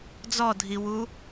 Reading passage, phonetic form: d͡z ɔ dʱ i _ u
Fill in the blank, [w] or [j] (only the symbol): w